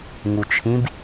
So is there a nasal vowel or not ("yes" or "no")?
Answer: yes